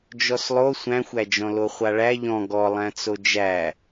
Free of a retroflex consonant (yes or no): no